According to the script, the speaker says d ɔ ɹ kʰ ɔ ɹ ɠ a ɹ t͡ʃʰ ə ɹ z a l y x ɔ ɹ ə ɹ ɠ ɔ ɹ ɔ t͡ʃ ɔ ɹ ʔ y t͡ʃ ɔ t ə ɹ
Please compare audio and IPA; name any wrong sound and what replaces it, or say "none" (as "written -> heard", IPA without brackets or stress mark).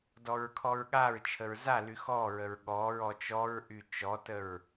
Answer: none